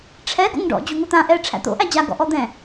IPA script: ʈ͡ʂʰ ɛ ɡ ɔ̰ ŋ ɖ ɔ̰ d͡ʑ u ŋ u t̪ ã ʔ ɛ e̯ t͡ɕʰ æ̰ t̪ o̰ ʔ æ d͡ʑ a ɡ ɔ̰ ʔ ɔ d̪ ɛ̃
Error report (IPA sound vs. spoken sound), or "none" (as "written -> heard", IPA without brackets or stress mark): t͡ɕʰ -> ʈ͡ʂʰ